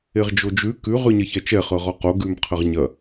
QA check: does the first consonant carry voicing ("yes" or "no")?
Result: yes